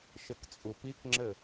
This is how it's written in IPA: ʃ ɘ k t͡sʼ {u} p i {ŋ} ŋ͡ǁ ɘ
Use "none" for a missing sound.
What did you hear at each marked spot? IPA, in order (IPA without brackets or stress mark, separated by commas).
u, k